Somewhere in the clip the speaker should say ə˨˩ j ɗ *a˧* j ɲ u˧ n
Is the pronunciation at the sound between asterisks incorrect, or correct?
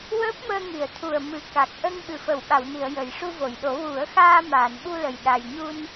correct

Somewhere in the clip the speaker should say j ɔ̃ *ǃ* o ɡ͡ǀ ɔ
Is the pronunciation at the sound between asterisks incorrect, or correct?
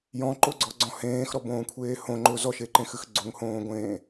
correct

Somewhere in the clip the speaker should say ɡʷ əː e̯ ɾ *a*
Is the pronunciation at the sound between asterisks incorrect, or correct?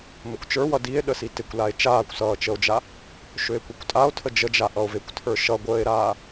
incorrect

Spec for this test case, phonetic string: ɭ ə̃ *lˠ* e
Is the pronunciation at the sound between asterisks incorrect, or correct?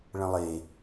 correct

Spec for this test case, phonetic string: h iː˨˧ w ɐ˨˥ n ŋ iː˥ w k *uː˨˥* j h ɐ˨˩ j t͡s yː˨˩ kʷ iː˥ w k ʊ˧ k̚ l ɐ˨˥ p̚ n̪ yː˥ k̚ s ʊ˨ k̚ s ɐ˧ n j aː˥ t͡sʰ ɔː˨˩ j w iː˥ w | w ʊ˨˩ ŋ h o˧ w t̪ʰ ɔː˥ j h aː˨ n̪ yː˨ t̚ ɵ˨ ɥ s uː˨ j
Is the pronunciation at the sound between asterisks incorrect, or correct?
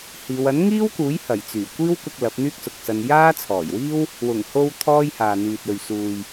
correct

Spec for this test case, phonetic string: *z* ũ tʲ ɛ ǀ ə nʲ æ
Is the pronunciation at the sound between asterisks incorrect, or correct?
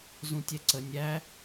correct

